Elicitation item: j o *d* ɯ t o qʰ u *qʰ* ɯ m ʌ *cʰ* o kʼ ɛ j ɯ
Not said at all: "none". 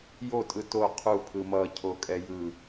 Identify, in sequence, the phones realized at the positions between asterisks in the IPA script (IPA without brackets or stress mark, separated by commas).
tʼ, pʰ, cʰ